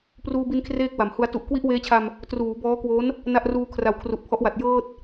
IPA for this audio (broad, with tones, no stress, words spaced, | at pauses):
pruː˧bi˧n kʰreː˥˩k̚wa˩˦mhu˧a̯ tu˨˩ʔ kwi˦˥ʔweː˦˥t͡ɕʰa˧m | truː˩˦bɔː˦˥kwo˦˥n | na˥˩ʔruː˧kʰra˩˦w kʰru˨˩ʔpʰɔ˦˥ʔwa˨˩t̚ jɤː˥˩t̚